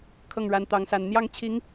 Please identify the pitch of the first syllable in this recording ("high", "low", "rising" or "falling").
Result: falling